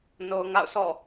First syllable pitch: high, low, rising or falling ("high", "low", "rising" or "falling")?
low